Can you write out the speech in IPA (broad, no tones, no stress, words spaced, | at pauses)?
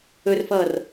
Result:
ɵrfʌːr